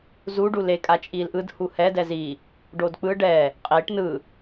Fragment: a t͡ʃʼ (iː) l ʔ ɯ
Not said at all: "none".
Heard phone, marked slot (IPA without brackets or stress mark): iː